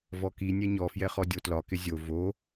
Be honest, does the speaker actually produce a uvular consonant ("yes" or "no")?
yes